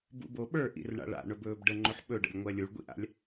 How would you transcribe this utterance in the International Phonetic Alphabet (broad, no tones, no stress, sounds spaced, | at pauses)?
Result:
b ṵ b o ɓ ə˞ ʔ ḭ r ɳ a̰ ɭ a̰ ɳ ɵ b ɵː b ɖ ə ŋ͡ǃ ɵ ħ ɓ ɵ ɖ ə̰ lʲ ŋʷ ɜ lʲ u ɭ ɡʷ ḭ ʔ a̰ lʲ